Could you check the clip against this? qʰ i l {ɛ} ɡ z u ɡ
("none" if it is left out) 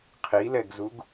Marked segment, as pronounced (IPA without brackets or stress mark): ɛ